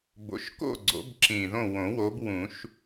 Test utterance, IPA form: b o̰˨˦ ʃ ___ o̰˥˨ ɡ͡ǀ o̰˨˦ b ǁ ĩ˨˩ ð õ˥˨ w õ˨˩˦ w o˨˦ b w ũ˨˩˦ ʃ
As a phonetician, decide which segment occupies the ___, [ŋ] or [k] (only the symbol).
k